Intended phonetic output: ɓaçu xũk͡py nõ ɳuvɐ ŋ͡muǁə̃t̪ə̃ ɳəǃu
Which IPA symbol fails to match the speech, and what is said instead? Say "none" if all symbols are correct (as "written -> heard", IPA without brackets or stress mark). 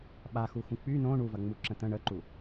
ç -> x